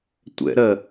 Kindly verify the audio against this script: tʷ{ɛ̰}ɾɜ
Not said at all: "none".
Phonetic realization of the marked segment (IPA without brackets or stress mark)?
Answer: ɛ̰